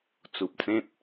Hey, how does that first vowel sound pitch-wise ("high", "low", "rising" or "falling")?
low